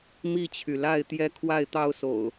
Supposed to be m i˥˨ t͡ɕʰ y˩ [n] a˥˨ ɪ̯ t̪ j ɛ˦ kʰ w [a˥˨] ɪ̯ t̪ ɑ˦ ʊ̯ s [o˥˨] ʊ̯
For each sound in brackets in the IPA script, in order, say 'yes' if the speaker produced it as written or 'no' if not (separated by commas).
no, yes, no